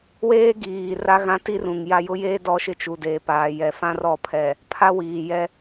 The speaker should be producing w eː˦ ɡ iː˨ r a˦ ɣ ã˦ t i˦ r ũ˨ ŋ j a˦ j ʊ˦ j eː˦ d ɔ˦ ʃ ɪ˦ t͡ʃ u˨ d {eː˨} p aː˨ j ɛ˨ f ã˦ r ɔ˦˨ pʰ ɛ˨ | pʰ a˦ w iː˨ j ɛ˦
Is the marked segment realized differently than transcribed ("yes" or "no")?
no